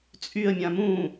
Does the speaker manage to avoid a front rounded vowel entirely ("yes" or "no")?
no